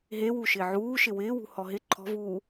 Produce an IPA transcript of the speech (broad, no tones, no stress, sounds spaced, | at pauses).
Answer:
ɦ e w u ʃ ɪː ʕ uː ʃ ɪ w ɪː w ṳ h ɔ ɦ ɪ ǃʰ ɔ̤ v uː